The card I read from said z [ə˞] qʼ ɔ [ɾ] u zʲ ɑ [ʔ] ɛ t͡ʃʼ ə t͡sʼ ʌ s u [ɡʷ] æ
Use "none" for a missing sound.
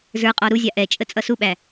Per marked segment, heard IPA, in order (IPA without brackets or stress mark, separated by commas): ə˞, ɾ, ʔ, ɓ